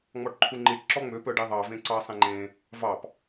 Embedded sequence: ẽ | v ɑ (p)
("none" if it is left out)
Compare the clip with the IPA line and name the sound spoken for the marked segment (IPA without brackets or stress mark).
p